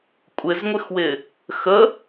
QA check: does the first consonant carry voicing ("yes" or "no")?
no